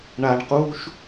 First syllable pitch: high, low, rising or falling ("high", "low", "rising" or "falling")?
low